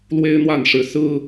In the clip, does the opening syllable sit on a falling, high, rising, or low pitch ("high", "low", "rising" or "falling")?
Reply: high